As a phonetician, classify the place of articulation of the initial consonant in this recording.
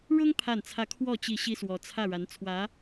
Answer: retroflex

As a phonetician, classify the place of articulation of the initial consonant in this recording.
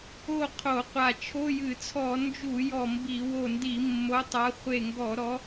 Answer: uvular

